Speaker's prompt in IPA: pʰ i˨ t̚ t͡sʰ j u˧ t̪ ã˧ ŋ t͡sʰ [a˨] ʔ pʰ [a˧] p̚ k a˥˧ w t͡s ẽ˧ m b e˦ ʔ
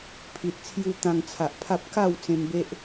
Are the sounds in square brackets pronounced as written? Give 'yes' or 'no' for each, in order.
yes, no

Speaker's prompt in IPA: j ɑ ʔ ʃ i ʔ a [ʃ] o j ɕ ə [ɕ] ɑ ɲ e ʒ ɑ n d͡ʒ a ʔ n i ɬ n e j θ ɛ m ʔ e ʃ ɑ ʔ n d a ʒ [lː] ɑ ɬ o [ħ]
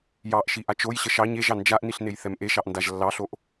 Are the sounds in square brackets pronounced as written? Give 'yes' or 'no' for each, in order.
no, no, yes, no

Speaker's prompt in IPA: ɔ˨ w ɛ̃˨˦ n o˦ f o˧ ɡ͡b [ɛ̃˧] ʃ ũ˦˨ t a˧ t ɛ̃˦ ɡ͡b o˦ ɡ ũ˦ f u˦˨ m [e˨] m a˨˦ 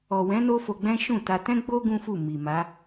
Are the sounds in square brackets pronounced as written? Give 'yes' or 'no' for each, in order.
no, no

